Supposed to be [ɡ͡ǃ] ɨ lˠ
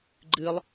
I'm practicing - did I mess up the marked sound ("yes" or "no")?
no